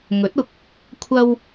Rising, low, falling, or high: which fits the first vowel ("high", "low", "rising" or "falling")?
rising